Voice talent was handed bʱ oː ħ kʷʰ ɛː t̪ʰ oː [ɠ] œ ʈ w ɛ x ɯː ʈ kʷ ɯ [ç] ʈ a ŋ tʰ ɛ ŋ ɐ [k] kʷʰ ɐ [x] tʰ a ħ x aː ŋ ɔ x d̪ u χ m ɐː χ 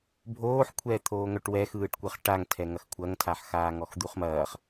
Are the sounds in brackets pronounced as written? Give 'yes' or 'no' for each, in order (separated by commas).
no, no, no, no